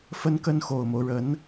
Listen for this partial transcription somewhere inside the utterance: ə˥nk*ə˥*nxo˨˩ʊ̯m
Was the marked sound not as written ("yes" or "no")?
no